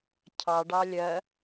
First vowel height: low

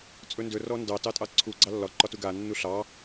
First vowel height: mid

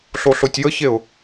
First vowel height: mid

